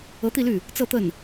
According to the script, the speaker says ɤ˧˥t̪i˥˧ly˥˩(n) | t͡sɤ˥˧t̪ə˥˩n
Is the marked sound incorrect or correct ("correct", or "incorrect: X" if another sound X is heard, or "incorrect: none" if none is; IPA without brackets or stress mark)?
incorrect: none